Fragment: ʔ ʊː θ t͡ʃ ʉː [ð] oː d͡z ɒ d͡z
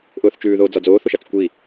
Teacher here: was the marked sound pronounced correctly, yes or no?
yes